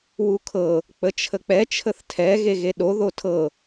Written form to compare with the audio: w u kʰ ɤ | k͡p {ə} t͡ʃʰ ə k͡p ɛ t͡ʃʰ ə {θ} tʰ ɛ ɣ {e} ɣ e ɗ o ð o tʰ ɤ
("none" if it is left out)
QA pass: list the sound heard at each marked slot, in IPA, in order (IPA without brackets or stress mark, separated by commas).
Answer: ə, θ, e